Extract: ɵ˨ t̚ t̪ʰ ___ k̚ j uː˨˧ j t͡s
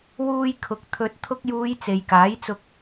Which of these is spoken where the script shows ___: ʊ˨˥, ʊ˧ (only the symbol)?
ʊ˧